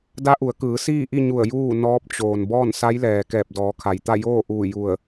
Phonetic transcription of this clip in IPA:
d a˧˥ ʔ u˩˧ ə̯ k ɯː˩˧ s iː˥˨ ʔ i˥˨ ɲ u˧˩ ə̯ j uː˥˨ n ɔː˧˥ p̚ t͡ɕ oː˩ n b ɔː˥˨ n s a˧˥ j l ɛː˩ k ɛː˧˩ p̚ d ɔː˩˧ kʰ a˩ j t̪ a˥˨ j oː˥˨ ʔ uː˧˩ j u˧˩ ə̯

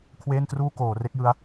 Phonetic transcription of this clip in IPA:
kʰ w eː˥˩ n t r uː˥˩ k oː˩˦ r e˦˥ k̚ j ɯ˦˥ a̯

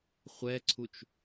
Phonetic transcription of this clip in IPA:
χʷ ɛ ǀʰ u t͡ʃ

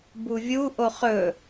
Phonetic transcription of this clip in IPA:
b u vʲ u ʔ o χ ɵ

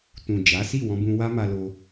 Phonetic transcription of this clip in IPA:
t ũ˨ d͡ʒ a˨˦ s i˦˨ w ɔ̃˧ b ũ˧ w a˦ m a˧ l o˧

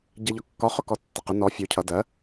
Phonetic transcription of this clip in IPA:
ɟ ɛ ʎ ɒ kː ɒ χ ʊ k ɔ tː ɪ q ɪ n ɔ fʲ u cʰ ʌ d ɜ

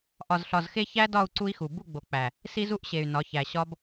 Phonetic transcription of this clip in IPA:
ʔ ɒ˨ z ɬ ɒ˨ z x e˦ ç æ˦ d ɒ˦˨ u̯ ǀ u˦ i̯ x u˨ b u˦˨ ɡ͡b o˨ k͡p æ˨ | s i˦ z u˦ ʔ ɕ e˨ y̯ n ɒ˨˦ ç æ˨ ɕ ɒ˦ b

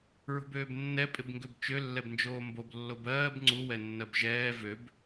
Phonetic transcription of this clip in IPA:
ɹ o̤ b øː b nː ɛ pʼ ɪ b ŋ ɡ ø b t͡ʃ ø lː ɛ b n d͡ʒ oː m b o b lː o b ɜː b ŋ͡ǀ u w ɛ nː ɜ b ʒ ɛː v ø b

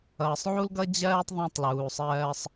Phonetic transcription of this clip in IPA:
ʌː˨ sˤ ʕ u˦ l ɡ ʌ˦ d͡ʑ ɜː˦ tˤ ðˤ æ̃˦ tˤ l uː˨ sˤ ɜː˦ sˤ

